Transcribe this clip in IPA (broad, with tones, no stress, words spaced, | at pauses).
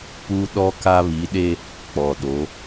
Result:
pu˦ ɗɔ˦ka˦ βi˨˦ɗe˦ | k͡pɔ˨ɗo˨˦